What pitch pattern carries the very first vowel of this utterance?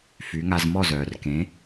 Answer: rising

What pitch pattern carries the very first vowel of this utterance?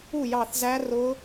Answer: falling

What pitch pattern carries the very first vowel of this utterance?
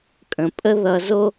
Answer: low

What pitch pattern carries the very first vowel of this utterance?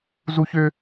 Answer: high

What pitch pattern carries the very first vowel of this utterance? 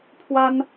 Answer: high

